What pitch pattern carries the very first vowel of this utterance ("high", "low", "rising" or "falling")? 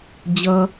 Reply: high